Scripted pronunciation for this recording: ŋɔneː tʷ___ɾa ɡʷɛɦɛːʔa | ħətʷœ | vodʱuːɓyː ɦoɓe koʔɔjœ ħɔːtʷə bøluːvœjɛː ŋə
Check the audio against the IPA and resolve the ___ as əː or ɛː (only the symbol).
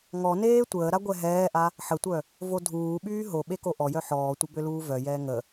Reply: əː